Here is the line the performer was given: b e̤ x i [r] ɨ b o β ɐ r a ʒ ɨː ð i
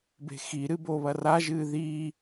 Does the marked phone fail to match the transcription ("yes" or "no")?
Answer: yes